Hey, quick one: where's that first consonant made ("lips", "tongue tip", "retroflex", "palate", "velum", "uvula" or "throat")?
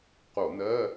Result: uvula